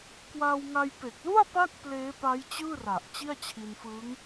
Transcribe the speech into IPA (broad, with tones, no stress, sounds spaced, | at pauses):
k w aː˧ w ŋ a˧ j p e˨˩ k̚ l u˥˩ a̯ p a˦˥ k̚ p l eː˦˥ p a˦˥ j t͡ɕ ɯː˥˩ r a˨˩ ʔ t͡ɕ i˥˩ a̯ t͡ɕʰ i˧ n f ɯː˦˥ ŋ